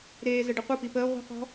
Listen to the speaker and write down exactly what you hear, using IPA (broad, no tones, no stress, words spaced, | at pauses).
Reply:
ɾeː zəɖəqʷəpi pəː ʁʷi̤qɔ̤